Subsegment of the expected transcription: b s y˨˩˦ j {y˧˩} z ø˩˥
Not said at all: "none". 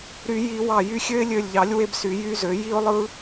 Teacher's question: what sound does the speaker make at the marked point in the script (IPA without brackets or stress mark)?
y˦